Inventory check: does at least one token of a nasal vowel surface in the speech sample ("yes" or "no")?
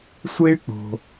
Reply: no